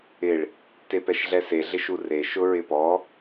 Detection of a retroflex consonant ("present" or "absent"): present